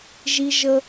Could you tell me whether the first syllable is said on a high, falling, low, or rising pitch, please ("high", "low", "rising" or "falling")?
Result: high